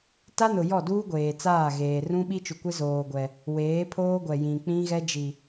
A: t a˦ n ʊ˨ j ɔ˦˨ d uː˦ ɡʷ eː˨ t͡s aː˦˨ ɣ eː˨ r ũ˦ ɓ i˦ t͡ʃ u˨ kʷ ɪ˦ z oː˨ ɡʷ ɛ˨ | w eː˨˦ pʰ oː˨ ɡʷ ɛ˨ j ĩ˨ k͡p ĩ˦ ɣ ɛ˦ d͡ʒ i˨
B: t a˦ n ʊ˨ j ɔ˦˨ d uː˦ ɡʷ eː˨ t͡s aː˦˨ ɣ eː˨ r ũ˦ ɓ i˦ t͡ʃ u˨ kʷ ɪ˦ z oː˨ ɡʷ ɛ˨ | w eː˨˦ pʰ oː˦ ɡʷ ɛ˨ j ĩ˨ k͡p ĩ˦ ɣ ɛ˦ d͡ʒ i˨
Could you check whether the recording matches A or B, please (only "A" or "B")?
B